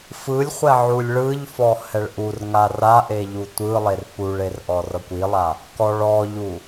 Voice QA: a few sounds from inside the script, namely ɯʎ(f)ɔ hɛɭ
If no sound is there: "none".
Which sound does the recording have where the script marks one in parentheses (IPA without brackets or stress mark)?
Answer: f